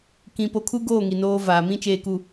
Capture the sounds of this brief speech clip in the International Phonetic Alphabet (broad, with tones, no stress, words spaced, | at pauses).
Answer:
kĩ˨ po˨kʰu˦ɡoː˦˨ ŋi˨noː˦vaː˨ mĩ˦t͡ʃeː˨ku˨